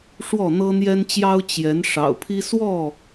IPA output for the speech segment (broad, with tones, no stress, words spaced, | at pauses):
ʂwɔ˥˨n̪ɤ˦n̪jɛ˦nt͡ɕjɑ˦ʊ̯ t͡ɕjɛ˨˦n ʂɑ̰˨˩ʊ̯pʰi˦ swɔ˥˨